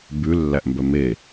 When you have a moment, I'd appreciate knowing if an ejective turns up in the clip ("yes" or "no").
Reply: no